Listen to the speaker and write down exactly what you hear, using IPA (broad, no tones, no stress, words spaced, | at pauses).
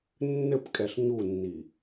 nːɘpkʼɛɬ ɲunːi